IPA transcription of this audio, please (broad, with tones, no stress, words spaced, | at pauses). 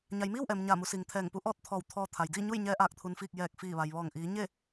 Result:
ɲa˩˧j miː˥˨wʔɛː˩m ɲaː˧˩mu˩˧siː˩ŋ t̪ʰɛː˧˩ŋpu˧˥ ʔɔː˥˨t̚t̪ʰɔː˧˩w t̪ʰɔː˧ t̪ʰa˩jdiː˥˨ɲu˥˨jɲɛː˧ ʔaː˧˩k̚ t̪ʰu˩nfiː˧˩k̚ jɛː˧˩k̚fiː˧˩ʋa˩jʋɔː˧˩ŋ ʔiː˩˧ɲe˥˨